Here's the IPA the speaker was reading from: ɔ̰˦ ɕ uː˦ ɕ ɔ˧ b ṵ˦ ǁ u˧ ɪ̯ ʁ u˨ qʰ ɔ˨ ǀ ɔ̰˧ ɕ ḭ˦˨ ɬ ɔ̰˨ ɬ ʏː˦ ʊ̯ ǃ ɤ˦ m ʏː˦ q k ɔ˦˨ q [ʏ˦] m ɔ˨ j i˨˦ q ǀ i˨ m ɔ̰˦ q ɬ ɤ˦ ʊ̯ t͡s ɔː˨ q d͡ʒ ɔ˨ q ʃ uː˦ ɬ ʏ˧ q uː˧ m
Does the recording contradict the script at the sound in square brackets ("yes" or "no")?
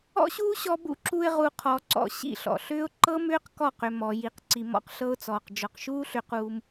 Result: yes